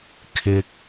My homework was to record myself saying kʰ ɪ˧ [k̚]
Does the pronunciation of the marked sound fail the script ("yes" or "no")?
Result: no